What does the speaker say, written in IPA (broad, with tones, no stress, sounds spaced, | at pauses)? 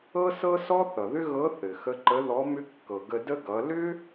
ɤ˥ s ɤ˥ s ɔ˥ θ ʌ˩ ð ʏ˥ ɣ ɤ˧˥ θ ɘ˩ x ə˧˥ ǃ ə˧˥ ð ɔ˧˥ m ʏ˥ kː ɤ˩ ɡ ə˧ d ə˥ ɡ ʌ˩˧ l ʏ˥